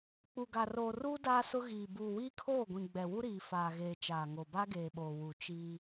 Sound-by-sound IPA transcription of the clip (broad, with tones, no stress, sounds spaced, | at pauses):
k͡p u˨ ɡ a˨ r oː˨ r uː˦ d aː˦ s ʊ˦ ɣ iː˨ b uː˨ w iː˦ kʰ oː˦˨ ɡʷ ĩ˨ ɡ͡b ɛ˨ w u˦ ɾ iː˨ f aː˨ ɣ eː˨ t͡ʃ aː˨ ŋ o˨ b a˦ ɡ eː˨ ɓ oː˨ w u˨ t͡ʃ i˦